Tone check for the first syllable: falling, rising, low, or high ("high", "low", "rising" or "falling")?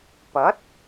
rising